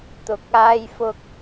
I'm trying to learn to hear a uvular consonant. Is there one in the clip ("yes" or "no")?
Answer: no